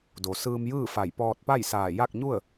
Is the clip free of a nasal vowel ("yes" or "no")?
yes